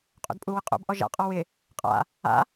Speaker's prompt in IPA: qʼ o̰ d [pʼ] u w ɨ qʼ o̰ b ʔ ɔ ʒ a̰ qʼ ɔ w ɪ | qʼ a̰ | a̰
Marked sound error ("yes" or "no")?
no